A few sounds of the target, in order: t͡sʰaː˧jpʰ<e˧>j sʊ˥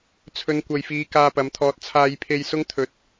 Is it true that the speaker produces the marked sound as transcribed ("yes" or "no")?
yes